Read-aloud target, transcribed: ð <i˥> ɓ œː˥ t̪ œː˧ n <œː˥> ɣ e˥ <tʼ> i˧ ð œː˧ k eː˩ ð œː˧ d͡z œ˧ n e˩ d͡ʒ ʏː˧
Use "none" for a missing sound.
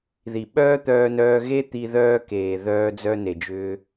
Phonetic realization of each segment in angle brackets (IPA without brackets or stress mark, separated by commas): i˩, œː˧, t̪